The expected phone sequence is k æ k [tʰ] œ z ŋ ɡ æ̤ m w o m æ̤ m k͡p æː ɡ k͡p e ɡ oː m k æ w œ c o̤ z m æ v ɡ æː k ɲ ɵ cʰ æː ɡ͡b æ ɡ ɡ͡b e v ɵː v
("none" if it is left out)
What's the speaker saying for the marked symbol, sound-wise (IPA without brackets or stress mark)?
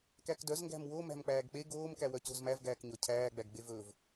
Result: d